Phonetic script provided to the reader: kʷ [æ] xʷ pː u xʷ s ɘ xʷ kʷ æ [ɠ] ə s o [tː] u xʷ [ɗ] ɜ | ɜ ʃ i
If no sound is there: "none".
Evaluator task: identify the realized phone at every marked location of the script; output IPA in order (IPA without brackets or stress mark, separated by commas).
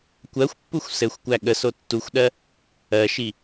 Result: ɜ, ɠ, tː, ɗ